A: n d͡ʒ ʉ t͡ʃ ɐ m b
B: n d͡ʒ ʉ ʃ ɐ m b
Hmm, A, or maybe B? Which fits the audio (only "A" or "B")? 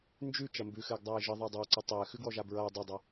A